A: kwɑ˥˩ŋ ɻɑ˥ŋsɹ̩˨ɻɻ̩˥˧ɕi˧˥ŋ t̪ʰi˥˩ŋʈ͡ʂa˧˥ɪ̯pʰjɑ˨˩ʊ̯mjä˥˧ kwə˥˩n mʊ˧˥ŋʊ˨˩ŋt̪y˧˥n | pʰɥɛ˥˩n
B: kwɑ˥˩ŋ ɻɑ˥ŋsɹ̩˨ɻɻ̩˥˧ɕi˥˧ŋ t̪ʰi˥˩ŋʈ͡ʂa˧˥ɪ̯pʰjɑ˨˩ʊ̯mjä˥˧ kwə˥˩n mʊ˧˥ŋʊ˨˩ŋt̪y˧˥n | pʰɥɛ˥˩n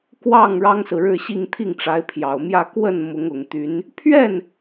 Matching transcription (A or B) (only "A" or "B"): B